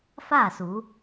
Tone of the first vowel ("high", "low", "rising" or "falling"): falling